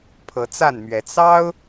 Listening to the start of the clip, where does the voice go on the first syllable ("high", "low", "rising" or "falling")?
rising